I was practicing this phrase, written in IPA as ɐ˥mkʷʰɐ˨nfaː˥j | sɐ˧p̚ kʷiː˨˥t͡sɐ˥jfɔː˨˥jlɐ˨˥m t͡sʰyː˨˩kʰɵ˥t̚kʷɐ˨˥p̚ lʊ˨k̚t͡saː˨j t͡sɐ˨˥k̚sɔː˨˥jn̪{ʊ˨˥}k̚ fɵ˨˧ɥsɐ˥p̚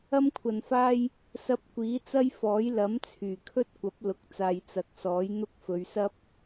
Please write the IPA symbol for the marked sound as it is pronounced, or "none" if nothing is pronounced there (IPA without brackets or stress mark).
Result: ʊ˥